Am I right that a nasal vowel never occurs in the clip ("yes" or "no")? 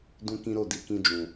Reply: no